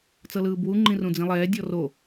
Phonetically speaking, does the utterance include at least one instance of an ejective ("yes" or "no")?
no